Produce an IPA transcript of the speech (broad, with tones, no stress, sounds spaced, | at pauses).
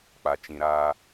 k͡p a˨ t͡ʃ ĩ˨ ɾ aː˦